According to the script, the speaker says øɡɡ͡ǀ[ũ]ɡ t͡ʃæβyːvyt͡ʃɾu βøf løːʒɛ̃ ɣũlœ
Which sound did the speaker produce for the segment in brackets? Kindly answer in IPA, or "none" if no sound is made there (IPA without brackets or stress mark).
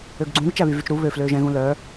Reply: ũ